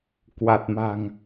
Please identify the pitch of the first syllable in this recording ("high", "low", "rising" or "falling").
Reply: low